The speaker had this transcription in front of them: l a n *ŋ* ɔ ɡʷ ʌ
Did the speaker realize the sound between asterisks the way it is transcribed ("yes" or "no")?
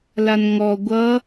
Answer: yes